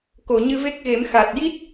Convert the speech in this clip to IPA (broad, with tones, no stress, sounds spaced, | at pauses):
k o˨˩˨ ɲ ɨ˧ v e˦˥ k̚ ɣ e˨˩˦ m x a˨˩ t̚ j i˦˥ t̚